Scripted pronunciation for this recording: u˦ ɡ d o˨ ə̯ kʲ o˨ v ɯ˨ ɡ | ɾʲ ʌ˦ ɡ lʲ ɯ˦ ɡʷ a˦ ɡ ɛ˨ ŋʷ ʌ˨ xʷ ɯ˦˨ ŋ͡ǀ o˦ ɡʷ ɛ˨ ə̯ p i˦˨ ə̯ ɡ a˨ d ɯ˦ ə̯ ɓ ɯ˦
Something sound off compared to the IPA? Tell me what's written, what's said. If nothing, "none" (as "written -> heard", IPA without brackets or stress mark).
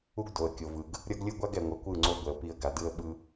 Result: xʷ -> kʷ